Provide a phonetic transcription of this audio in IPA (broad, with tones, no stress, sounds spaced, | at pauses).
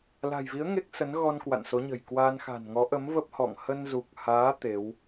l a̤˨˩ j v i˨˦ ə̯ ŋ e˦˥ k̚ s ə˨˦ n ɣ ɔ˧ n k w a̰˧˨ n s o˨˦ ɲ ə̤˨˩ j k w a˧ n x a̤˨˩ n ŋ ɔ˨˦ ʔ ə˨˦ m v ə˦˥ p̚ h ɔ̰˧˨ ŋ h ə˧ n z u˨˩ k̚ h aː˨˦ t̪ e˨˦ w